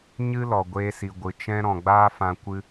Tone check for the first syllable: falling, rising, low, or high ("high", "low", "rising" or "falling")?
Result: high